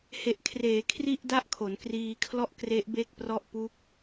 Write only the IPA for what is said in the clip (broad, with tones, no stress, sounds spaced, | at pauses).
h e˨˩ ʔ kʰ r eː˩˦ kʰ r i˥˩ ʔ d a˥˩ ʔ kʰ o˩˦ n k r iː˧ kʰ l ɔ˥˩ ʔ k r e˦˥ ʔ b e˥˩ k̚ p r ɔ˥˩ ʔ p u˦˥ k̚